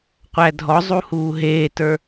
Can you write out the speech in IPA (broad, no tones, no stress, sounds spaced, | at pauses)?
qʷ æ dʱ ɔ zˤ u h uː ɦ eː t ə˞